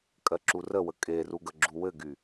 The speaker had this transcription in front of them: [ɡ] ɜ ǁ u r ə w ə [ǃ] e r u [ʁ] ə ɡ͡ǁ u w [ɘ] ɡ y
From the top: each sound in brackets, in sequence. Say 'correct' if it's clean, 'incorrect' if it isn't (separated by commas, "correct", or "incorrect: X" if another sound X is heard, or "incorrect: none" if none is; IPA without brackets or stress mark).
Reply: incorrect: kʼ, incorrect: kʼ, incorrect: ɡ, correct